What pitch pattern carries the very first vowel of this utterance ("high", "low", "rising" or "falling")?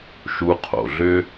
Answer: rising